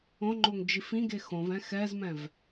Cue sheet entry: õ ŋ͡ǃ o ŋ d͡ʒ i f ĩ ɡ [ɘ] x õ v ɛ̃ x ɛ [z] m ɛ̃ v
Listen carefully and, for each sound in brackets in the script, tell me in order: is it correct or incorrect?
incorrect: e, correct

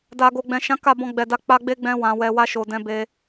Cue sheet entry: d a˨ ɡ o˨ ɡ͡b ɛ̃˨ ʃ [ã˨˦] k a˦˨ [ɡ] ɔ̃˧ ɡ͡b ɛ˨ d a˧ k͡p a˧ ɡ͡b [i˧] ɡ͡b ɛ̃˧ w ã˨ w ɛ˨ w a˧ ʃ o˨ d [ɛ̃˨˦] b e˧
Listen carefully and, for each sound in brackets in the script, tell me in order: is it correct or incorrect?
correct, incorrect: b, incorrect: e˧, correct

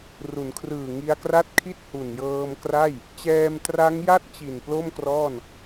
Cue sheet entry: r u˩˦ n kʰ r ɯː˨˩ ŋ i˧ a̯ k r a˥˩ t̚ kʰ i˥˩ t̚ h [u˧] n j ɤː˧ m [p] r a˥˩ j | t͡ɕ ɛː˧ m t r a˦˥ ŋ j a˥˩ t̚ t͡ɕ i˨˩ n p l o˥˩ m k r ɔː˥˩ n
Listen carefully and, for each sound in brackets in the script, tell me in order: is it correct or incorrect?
incorrect: u˨˩, incorrect: k

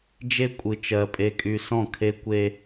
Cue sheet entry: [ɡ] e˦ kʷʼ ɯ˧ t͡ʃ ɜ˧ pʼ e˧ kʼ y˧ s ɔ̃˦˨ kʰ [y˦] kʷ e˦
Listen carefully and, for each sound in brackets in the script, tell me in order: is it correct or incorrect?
incorrect: d͡ʒ, incorrect: e˦

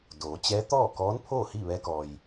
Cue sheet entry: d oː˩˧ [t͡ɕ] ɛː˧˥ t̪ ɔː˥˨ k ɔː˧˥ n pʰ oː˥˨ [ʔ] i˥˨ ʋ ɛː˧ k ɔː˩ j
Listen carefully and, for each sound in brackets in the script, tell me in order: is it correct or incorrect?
correct, incorrect: h

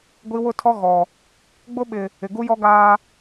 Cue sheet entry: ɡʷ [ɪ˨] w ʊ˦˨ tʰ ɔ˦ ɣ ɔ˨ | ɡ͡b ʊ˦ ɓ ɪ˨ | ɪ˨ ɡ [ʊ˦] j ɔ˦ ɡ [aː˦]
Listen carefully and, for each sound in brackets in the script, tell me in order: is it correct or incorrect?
incorrect: i˨, incorrect: u˦, correct

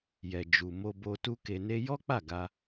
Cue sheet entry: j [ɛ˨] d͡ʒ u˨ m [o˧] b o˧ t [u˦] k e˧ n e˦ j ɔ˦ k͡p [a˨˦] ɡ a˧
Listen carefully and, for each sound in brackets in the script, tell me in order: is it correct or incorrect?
correct, correct, correct, incorrect: a˦˨

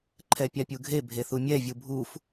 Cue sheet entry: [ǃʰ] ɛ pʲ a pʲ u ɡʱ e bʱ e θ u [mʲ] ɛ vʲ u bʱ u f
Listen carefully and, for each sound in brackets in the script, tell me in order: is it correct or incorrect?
correct, correct

